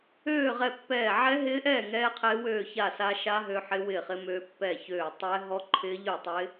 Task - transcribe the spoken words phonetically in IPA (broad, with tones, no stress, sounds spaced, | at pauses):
øː˥˨ ʁ ɛ˥˨ pː ɛː˥˨ ʕ ɛ˦˥ ɦ ɪː˦˥ ʔ ɛː˥˨ ŋ ɛː˦˥ qʰ ɪː˦˥ w øː˥˨ ç a˥˨ s a˦˥ ʃ a˦˥ ɦ ø˦˥ ħ ɪ˦˥ w ɪː˥˨ χ ɪ˦˥ m ø˦˥ pː ɛ˥˨ ç øː˥˨ tˤ ɛ˦˥ ɦ ɔ˦˥ ǃʰ ɪː˦˥ ʎ ø˥˨ tˤ ɪː˦˥